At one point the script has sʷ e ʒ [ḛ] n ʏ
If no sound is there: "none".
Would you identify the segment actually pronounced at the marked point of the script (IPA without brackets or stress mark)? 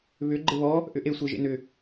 ḛ